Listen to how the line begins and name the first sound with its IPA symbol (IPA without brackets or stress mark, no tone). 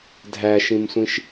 dʱ